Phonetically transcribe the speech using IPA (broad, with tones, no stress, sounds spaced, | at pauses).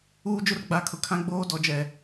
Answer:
uː˦ d͡ʒ ʊ˦ r ɡ͡b a˨˦ kʰ ʊ˨ kʰ ã˦ ɡ͡b oː˦ d ɔ˨ d͡ʒ ɛ˨